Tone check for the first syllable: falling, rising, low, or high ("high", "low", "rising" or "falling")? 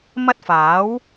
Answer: high